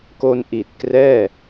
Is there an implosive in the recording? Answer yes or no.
no